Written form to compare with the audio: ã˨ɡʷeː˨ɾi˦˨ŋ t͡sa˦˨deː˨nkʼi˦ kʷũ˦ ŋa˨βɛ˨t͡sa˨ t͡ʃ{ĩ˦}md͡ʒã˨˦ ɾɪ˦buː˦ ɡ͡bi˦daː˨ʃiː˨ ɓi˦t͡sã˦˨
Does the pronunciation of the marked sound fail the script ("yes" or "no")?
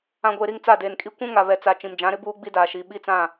yes